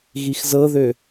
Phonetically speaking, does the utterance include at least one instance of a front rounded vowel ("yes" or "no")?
yes